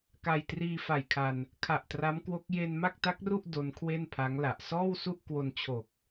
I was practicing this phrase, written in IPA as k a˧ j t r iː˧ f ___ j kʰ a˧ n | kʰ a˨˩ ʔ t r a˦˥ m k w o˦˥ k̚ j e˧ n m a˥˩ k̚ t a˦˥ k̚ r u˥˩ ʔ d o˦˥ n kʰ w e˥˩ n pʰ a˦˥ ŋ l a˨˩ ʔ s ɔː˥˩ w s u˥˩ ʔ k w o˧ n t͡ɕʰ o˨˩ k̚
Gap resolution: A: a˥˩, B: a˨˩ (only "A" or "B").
B